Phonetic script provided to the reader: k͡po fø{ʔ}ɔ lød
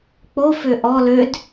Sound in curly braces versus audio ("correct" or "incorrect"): correct